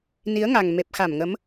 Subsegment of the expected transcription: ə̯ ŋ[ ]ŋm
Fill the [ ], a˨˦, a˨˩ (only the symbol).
a˨˩